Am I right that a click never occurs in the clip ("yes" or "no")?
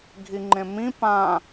no